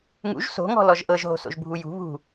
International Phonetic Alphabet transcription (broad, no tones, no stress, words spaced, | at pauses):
ŋṵʒ so̤ŋɔ̤ lɔʒʔɤʒɦo̤so̰ʒ bʱujṳ βṳ